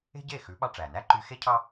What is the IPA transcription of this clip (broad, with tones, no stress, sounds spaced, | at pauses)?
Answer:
e̤˥ ɟ e˥˩ x ʉ˩˥ ɓ ɑ˧ ʈ͡ʂ æ˩ n æ˥ ǃ y˧ x e˥ cʰ ɑ˥